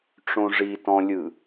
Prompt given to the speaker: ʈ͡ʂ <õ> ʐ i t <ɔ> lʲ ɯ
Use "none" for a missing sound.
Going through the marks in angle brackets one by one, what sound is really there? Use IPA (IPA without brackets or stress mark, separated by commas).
õ, ɔ̃